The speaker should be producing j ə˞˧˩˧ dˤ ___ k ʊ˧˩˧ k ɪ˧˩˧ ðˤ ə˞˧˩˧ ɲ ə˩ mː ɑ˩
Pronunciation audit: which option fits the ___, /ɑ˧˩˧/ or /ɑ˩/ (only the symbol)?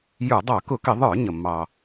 ɑ˧˩˧